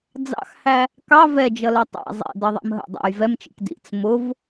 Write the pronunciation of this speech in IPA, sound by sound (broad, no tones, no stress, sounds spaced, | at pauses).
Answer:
d͡z ɑ̰ x h æ | k ɑ v ɛ d͡ʒ ʌ l ɛ tˤ æ̰ zˤ ɛ̰ d ʌ ðˤ æ̰ m ɦ ə̰ dˤ æ̰ j v ɛ m t͡ʃ ḭ k d ḭ t͡s m ʊ v